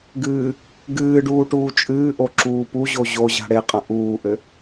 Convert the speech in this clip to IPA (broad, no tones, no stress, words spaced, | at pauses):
ɡɨː | ɡɨːɖuː ʈuːt͡ʃʼɨːʔo ǁuːpuʑo ʑoʑa̤ ɽeqʼɐ̃ ʔuːʔɘ